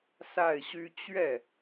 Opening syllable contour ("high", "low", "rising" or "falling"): falling